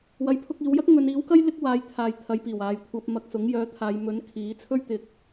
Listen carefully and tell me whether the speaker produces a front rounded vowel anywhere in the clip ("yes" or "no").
yes